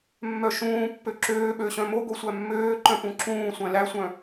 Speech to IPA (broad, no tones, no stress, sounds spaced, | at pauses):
mː œ ʃ ũː pː ø ǁ øː ɓ ø ɕ œ̃ m o ɡ o sʷ æ mː øː ǃ œ̃ p ũ ǁ ũː sʷ æ̃ l æ sʷ œ̃